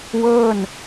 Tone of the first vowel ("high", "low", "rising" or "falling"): falling